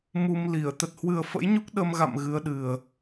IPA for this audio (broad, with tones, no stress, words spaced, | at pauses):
mu˧mli˧˩ə̯ t̪ə˨˩t̚hwɨ˨˩ə̯fə̰˧˥jɲu˦˥k̚ ɗə˧mɣa̰˧˨m ɣɨ˨˦ə̯ɗɨ˨˩ə̯